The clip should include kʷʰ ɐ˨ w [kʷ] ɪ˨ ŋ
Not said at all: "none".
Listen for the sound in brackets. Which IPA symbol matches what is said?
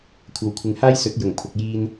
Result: kʷʰ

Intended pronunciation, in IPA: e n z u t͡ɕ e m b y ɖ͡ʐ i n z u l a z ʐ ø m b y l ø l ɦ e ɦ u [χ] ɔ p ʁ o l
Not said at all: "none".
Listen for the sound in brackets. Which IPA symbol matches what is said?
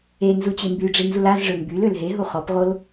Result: χ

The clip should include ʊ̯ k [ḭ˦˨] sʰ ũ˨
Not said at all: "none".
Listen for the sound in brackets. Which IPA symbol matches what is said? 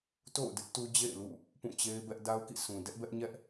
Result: ḭ˦˨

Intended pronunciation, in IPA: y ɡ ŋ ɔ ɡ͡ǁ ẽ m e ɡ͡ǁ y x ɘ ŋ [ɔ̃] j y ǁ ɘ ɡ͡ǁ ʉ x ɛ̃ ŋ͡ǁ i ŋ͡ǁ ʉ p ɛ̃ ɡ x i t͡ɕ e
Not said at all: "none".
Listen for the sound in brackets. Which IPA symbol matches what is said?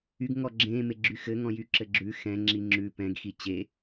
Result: ɔ̃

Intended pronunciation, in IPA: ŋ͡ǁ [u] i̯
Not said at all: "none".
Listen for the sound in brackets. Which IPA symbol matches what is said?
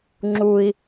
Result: u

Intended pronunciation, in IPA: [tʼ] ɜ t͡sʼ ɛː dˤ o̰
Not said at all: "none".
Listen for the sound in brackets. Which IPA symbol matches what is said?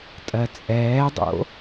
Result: tʼ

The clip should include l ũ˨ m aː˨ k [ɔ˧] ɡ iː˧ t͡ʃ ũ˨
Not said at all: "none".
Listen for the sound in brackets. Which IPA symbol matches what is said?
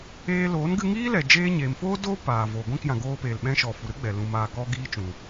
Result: ɔ˧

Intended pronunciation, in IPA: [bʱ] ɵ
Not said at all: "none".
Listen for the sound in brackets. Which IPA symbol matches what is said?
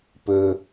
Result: p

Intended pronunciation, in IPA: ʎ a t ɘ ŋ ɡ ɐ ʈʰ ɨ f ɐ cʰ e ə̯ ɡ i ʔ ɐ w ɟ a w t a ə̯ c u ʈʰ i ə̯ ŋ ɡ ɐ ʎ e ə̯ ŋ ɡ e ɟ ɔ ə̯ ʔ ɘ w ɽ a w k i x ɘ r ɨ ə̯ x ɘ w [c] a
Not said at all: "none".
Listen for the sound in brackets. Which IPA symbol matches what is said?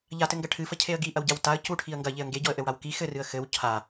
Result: cʰ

